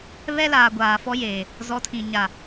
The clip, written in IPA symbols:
βɛ˦laː˨ ɡʷaː˨fɔ˦jeː˨ | zɔ˨˦tʰĩ˨ ɲa˨

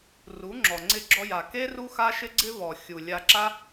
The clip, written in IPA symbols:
ru˨˦ŋ͡ǁɔ˨ ŋ͡ǀɪ˧ɡ͡ǁɔ˧ja˨ke˦ ru˦xa˦ ʃɪ˦ɡ͡ǀɪ˦vɔ˨ xʲu˨lʲa˧ǁa˦

